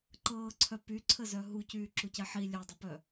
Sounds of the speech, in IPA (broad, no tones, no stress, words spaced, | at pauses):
ǃɤːǀʰœ pyǀʰəzœ ɦucyːǁucɛ ħi lʲœdˤəpœ